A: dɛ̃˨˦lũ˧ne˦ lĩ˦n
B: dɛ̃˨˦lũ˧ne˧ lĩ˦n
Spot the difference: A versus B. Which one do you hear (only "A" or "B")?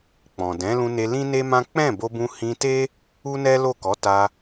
B